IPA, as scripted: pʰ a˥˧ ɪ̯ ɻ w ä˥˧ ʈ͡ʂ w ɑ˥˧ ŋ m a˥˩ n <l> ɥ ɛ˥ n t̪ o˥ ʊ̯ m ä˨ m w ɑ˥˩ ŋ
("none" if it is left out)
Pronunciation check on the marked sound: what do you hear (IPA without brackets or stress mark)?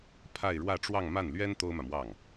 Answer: l